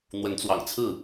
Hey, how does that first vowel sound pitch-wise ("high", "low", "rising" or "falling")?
rising